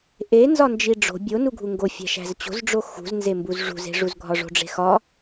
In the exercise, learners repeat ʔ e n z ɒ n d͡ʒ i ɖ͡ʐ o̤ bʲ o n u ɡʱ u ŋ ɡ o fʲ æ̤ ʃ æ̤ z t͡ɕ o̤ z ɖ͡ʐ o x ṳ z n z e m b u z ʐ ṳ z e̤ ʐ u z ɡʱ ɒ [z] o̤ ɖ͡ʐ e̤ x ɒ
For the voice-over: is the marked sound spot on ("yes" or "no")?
no